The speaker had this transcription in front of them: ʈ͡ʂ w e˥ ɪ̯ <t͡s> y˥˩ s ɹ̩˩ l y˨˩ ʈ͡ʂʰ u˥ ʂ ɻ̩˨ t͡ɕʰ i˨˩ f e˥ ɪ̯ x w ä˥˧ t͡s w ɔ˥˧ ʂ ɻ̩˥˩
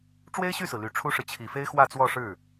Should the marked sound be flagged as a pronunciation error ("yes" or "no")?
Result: yes